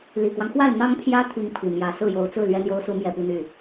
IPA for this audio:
li˨˩kwɑ˦ŋxwa˥˩ɪ̯ n̪ɑ˥ŋpʰjä˥ t̪ʰi˧˥ŋpʰi˨˩ mjä˧˥ sɹ̩˥˩jo˧˥ʊ̯t͡sɹ̩˥˩ lɥɛ˥n̪jo˥ʊ̯su˧˥ mjɛ˥˧pi˥˧n̪y˥˩

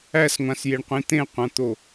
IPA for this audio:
æsŋʷãsjeɳqʷĩ t̪ẽqʷãt̪o

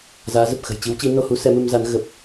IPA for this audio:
zaː˨˦zə˨˩p̚ xə̤˨˩jt͡ɕi˨˦wt͡ɕi˨˦ no˧hu˨˦ sɛ˨˦mɨ˧mza˨˦n ɣə˨˩p̚

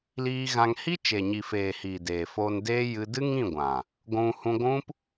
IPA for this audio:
liː˧ɣã˧ŋ hi˦t͡ʃe˨ɲi˨feː˨ hiː˨deː˨foː˧n deː˦ jɨ˦ dɨ˦ŋĩ˦˨ɡʷã˨ | ɡʷũ˧ hũ˧ɡʷũ˦p

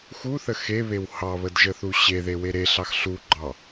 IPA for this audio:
xuθə xeβew hɑβədʒəθu ɕeðewe ɾeɬɑx ɬuɡ͡ǃɑ

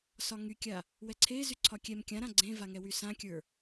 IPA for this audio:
sɒŋykʲa | wɛǀʰe zyǀʰɒkʲɛm kʲãɾã ɡ͡ǀẽvaŋɛ wysãkʲə˞

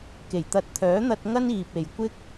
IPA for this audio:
ke˨˩jt̪ɐ˨˥t̚ t̪ʰœː˨˥n̪ɐ˧t̚ ŋɐ˥niː˨p̚e˨j kʷɪ˥k̚

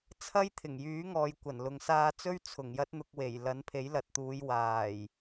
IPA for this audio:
t͡sʰɐ˥jt̪ʰɪ˨˩ŋjyː˨˥ŋɔː˨j kʷɐ˨˩nlʊ˨ŋsaː˧t͡sɵ˥ɥ t͡sʰʊ˨˩ŋjɐ˥t̚n̪ʊ˧k̚we˨˩j lɐ˨˥npʰe˨˥jlɐ˨t̚t̪uː˨˧j waː˨˩j

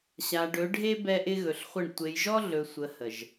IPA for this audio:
ɕa˨ɖɵ˨˦ɖʱe˦ bɛ˦ʔɪ˦ɣɵ˨ɬχʷə˦˨ɳ tʷe˨jʒɔ˦ ɮɵ˨sʷə˨ hə˨ʒ

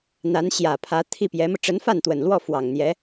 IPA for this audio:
n̪a˧˥nɕjä˨˩pʰä˧˥ t̪ʰi˥˩pjɛ˧˥mɤ˧ ʈ͡ʂə˧˥nfa˥˩nt̪wə˨˩nlwɔ˥˩ fwɑ˨˩ŋn̪jɛ˧˥

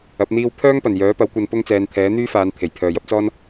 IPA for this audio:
ɐ˨˥p̚n̪iː˥w pʰœː˥ŋpɐ˨˩n jœː˨˥pɐ˨˥wkʷɐ˧n pʊ˥ŋt͡sɛː˨˧nt̪ʰɛː˨˥ n̪yː˥faː˨˧n t̪ʰe˨˩jpʰœː˨jɐ˥p̚t͡sɔː˥n

